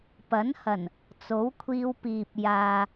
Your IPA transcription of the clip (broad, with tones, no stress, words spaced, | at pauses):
pɐ˨˥nhɐ˨˩n | t͡so˨˥wkʷʰiː˧wpiː˨p̚ jaː˨